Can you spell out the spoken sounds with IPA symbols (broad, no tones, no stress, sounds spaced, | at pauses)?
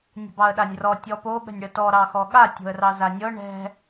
nʲ ə̤ b ɑ ə̯ ɗ a nʲ r ɔ tʲ ɔ p o ɠ ə̤ nʲ ɽ ə t ɔ ɾ ɑ x ɔ ɠ a tʲ o̤ ə̯ r ɑ z a nʲ ɤ ɳ ɛ̤